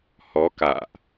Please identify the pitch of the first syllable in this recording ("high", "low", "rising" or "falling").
rising